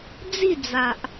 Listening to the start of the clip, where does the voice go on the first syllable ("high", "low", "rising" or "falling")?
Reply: falling